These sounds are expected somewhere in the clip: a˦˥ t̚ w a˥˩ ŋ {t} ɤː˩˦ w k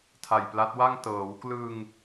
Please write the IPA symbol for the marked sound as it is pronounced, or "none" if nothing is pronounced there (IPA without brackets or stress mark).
t